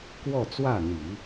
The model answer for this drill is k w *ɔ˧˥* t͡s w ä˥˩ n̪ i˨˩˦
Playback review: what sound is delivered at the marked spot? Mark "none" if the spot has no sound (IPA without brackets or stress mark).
ɔ˥˧